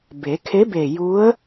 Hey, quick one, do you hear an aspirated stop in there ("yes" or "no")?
yes